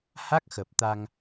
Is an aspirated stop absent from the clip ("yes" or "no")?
yes